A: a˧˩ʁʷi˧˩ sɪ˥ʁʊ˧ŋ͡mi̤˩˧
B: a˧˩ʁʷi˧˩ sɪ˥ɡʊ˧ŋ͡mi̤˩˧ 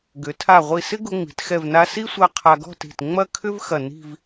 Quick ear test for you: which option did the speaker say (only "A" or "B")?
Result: B